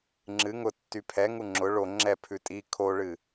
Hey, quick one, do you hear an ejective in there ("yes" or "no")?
yes